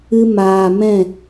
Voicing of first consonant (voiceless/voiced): voiced